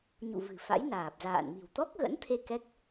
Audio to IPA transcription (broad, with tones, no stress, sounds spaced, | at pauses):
ɲ ṵ˧˨ v ɨ̤˨˩ f a̰˧˥ j n aː˨˩ p̚ z a̰ː˧˨ n m i̤˨˩ w t̪ ɔ˦˥ k̚ ɣ ə̰˧˥ n t̪ʰ e˧ k ɛ˦˥ k̚